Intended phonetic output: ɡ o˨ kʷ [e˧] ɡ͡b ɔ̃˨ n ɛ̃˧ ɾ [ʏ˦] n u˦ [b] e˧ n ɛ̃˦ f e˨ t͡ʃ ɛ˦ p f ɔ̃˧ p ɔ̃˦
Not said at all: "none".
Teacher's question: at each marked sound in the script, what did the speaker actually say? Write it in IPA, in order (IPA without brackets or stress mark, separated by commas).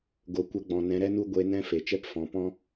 ɛ˧, ɛ˦, ɡʷ